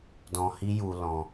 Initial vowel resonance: nasal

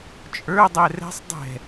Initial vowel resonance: oral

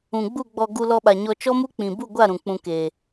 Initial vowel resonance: nasal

